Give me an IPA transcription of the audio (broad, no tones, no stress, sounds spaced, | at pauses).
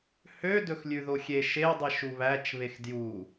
h ø d ɵ x lʲ ʉ ð o xʲ e ʃ e dˤ i ʃ u β æ t͡ʃ β e x d j u